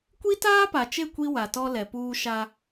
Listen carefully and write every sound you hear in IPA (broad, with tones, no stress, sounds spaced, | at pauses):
kʷ i˦ t aː˦ p a˨ t͡ʃ e˦˨ kʷ i˦ w a˨ t ɔ˦ l ɛ˨ p uː˦ ʃ a˦